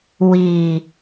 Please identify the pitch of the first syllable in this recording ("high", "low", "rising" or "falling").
low